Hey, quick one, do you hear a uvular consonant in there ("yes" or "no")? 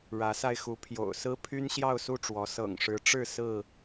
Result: no